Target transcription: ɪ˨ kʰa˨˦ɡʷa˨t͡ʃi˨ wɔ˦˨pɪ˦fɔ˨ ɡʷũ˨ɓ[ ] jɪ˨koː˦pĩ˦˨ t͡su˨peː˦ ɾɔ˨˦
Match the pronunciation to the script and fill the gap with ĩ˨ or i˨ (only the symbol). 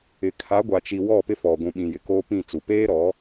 ĩ˨